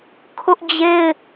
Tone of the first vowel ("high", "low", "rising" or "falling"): high